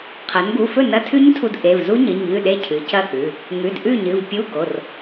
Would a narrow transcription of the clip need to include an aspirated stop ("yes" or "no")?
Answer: yes